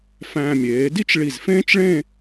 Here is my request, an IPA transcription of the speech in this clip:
f æ̃ː˧ mʲ eː˩˧ d i˥˧ t͡ʃ ɭ i˧˩ z f ẽː˥ t͡ʃ ɭ ẽ˥˧

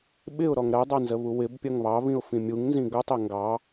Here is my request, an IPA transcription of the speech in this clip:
ɓ ɪ ʊ̯ ɾ ɔ ŋ ɾ ɜ dˤ ɑ n z ə β u w ɪ b pʲ ʌ ŋ β ɑ β ĩ ʊ̯ f ĩ mʲ u ŋ n z ĩ ɡ ʌ tˤ ɛ ŋ ɡ ɑ

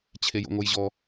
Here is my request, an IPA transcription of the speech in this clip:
t͡ɕʰ e j o̰ ŋ o j ʑ ɔ

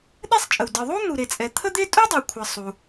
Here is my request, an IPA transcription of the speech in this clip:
ɗ ɛ˥ sˤ t͡ʃʼ ə˩ w d ɨ˩ ðˤ u˥ n̪ u˩ ɾ e˩ t͡sʼ ɛ˩ t̪ʰ ə˥ d̪ e˥ tʼ u˥ dˤ ə˩ w kʷʰ ə˩ sˤ u˩

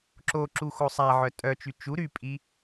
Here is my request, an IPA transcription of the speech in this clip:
ǁ o ǁ u x o sˤ a ʕ œ tʼ œ t͡ʃ y t͡ʃ u ɾ y pʼ i

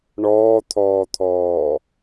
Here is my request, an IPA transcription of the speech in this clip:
ɳ ɔː t̪ʰ ɔː t̪ʰ ɔː

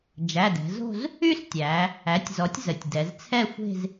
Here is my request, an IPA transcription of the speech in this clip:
d͡ʒ æ˩˧˩ d ɛ̤˩˧ z o̤˥˧ z | y˥˧ s tʲ æ˩˧ | æ˩˥ tʲ z ɔ˩˥ tʲ z ə˩˧ tʲ d ɛ˩˧ z t͡sʰ ɛ˥˧ xʷ e̤˥˧ z

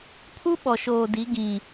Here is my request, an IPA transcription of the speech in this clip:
pʰ u˦ ɓ ɔ˨ ʃ oː˨ d i˨˦ ɡ ĩ˨

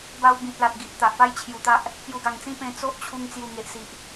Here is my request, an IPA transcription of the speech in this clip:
b a˧ w b ĩ˨ t̚ l a˨ t̚ ɡ i˨ ʔ t̪ a˨ ʔ p a˦ j t͡ɕʰ j u˨˩ t̪ a˦ ʔ | p j u˨˩ ɡ a˨˩ ŋ t͡s ĩ˦ p ẽ˧ t͡s o˦ ʔ t͡ɕʰ u˧ ŋ t͡s j u˨˩ ŋ e˨ ʔ s i˨ ʔ

